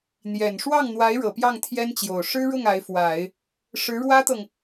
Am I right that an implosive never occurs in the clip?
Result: yes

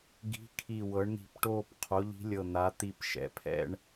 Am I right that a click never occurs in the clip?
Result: yes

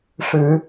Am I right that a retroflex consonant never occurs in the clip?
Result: no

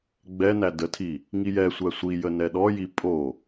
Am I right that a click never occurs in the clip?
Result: yes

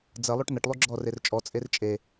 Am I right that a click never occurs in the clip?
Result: no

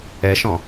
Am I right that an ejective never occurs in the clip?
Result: yes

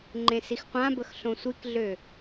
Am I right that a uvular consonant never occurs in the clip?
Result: no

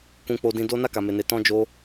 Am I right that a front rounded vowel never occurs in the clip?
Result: yes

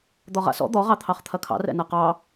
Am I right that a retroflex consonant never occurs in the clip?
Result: yes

